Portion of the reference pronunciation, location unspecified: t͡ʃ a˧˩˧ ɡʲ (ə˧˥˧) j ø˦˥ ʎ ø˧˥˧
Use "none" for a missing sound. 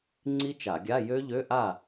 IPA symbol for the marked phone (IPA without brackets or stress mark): a˧˥˧